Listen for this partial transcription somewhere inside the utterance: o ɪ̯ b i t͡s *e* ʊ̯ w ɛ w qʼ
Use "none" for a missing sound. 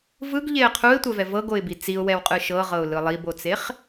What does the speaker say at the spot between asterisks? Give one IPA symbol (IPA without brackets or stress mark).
i